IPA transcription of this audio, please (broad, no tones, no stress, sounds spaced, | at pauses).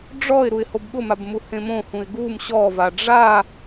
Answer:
ɖ͡ʐ ɔ ɪ̯ ɾ u ɪ̯ h o b ɠ ʊ m a b m u h ẽ m õ h ũ ɪ̯ ɡ u m ɕ ɔ v a ɖ͡ʐ a